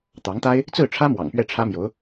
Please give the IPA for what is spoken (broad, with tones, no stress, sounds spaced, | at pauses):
t̪ ɑ˧˥ ŋ t̪ a˥ ɪ̯ | t͡s ɹ̩˥˩ ʈ͡ʂʰ ä˥ m w ɑ̰˨˩ ŋ p ɥ ɛ˥˩ ʈ͡ʂʰ ä˥ m j o˧˥ ʊ̯